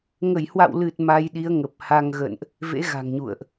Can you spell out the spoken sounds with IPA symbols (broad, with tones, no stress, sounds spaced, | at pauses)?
ŋ ə˧˩ j h w a̰˧˨ w l ɨ˨˩ t̚ m a˧ j ɗ i˨˦ ə̯ ŋ ə˨˩ p̚ h a˧ ŋ ɣ ə̰˧˨ n ʔ | v ḛ˧˥ ɣ a̤˨˩ ŋ ɲ ṵ˧˨ ə̯ ʔ